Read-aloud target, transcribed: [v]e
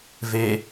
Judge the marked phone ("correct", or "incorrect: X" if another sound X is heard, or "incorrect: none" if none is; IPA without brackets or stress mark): correct